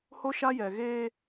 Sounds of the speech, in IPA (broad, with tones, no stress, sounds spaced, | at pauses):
h o˦ ʃ a˦ j ɛ˨ ɣ eː˦